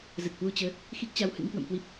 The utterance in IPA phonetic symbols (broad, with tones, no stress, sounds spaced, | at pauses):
z ə˨˩ t̚ h w u˧ t͡ɕ əː˨˦ | x i˦˥ k̚ t͡ɕ a˨˦ w h ɨ̰˧˥ ŋ k w ə̰˧˨ m k w i˦˥ p̚